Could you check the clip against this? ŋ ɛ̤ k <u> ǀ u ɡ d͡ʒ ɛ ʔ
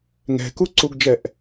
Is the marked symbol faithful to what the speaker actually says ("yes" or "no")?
yes